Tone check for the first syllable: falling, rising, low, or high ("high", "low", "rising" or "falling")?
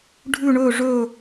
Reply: falling